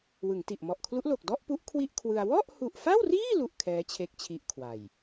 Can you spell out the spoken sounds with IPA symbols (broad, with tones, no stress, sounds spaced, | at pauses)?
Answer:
w ɯ˩˦ ŋ t i˨˩ ʔ m ɔ˨˩ ʔ kʰ l u˦˥ ʔ l o˨˩ k̚ d ɔ˥˩ ʔ p u˦˥ ʔ kʰ w i˥˩ ʔ kʰ w ɯ˧ a̯ w ɔ˥˩ ʔ h u˨˩ ʔ f a˥˩ w r iː˥˩ l u˥˩ ʔ kʰ ɛː˦˥ t͡ɕʰ e˦˥ k̚ t͡ɕʰ i˦˥ ʔ kʰ w a˨˩ j